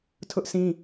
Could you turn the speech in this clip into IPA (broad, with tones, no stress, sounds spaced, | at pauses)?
tʰ ʊ˦ ʔ sʰ ĩ˦